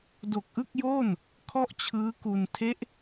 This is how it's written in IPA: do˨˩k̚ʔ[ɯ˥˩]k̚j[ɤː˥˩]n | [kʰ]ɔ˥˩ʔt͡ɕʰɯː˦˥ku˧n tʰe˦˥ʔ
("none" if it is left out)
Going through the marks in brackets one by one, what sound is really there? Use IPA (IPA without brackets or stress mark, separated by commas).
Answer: ɯ˥˩, oː˥˩, kʰ